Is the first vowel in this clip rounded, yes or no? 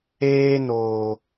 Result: no